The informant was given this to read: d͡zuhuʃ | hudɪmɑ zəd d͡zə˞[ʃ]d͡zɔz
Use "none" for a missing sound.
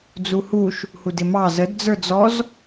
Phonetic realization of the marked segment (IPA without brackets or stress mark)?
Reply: none